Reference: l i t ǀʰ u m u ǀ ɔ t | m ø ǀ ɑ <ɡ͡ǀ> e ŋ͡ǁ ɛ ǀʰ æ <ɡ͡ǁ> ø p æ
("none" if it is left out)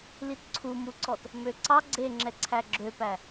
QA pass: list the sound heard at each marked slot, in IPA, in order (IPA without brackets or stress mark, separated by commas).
ɡ͡ǀ, ɡ͡ǁ